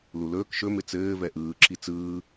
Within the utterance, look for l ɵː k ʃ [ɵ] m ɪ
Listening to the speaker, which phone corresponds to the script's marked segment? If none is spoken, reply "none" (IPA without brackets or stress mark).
ɵ